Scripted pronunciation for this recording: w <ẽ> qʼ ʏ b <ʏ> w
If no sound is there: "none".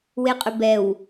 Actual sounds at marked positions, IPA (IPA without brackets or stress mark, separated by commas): e, ɛ